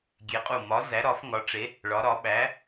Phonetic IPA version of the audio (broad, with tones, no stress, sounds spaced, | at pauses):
ɡʲ e˧˥ qʼ u˦˨ m ɒ˧˥ z æ˧˥ ɾ ɒ˧˥ f ŋ ɒ˧˥ ʈ͡ʂ e˧˥ | ɭ ɒ˧˥ ɾ ɒ˧˥ ɓ æ˧˥